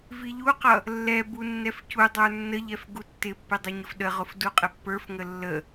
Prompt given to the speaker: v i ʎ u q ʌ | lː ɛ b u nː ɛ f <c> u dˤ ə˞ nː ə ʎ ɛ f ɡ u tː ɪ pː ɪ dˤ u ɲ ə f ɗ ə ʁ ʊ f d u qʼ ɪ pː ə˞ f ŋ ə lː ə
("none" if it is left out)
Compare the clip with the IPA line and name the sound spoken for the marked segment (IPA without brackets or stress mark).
c